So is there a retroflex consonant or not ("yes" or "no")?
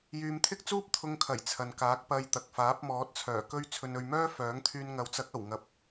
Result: no